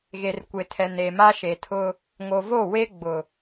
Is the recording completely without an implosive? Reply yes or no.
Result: yes